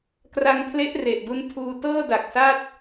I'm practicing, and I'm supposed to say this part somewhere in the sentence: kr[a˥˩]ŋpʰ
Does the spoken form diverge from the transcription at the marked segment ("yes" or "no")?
yes